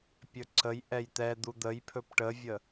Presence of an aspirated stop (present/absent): present